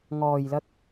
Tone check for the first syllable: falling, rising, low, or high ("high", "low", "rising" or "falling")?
low